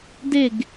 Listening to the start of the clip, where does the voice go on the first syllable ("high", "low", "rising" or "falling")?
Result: falling